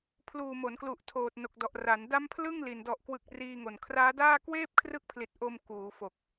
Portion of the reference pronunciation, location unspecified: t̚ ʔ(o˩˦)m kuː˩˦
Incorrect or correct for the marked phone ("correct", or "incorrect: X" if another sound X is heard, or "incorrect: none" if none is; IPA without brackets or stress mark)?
incorrect: o˧